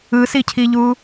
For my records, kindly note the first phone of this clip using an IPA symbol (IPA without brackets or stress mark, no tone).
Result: ɯ